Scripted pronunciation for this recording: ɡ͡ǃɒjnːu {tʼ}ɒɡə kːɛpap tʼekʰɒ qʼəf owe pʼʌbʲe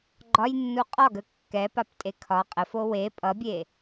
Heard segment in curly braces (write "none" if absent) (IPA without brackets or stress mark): qʼ